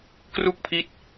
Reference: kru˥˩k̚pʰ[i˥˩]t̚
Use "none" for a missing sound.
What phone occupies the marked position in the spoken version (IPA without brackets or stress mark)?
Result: i˦˥